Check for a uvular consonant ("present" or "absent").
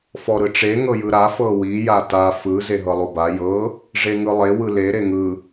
absent